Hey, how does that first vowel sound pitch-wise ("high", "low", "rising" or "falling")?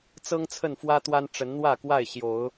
high